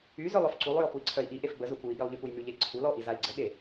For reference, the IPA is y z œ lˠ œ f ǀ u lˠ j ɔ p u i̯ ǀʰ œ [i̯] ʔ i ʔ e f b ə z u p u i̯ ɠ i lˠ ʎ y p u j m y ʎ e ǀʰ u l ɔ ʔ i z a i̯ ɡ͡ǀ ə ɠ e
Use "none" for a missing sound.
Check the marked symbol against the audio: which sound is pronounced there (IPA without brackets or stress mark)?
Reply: i̯